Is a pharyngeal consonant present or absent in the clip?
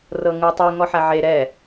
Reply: present